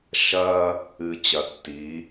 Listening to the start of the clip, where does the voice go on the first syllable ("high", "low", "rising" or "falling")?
high